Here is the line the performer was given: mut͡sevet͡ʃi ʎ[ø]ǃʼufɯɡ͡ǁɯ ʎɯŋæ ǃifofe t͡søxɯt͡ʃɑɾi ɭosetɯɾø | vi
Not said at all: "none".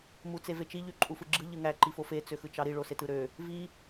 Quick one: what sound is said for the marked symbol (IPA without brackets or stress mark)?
y